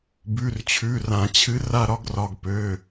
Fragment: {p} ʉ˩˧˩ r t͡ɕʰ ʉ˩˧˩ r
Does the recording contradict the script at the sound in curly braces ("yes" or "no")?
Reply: yes